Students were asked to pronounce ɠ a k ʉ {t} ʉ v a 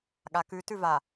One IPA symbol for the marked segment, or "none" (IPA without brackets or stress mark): t